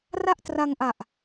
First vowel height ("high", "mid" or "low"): low